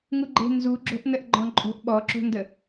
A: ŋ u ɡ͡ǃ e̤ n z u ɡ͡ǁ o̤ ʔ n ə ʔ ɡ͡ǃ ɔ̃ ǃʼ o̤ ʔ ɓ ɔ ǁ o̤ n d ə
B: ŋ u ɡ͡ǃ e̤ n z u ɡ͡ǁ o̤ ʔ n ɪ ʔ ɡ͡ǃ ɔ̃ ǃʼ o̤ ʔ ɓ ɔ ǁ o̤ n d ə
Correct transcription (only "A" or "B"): A